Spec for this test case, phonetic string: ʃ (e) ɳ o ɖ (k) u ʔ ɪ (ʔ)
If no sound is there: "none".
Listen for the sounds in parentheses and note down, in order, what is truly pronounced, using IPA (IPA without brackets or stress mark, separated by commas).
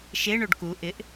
e, k, ʔ